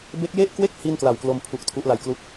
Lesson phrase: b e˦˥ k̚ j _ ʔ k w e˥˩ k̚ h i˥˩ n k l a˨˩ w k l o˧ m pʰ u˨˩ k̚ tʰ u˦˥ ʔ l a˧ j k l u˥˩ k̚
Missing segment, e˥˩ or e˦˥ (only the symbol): e˥˩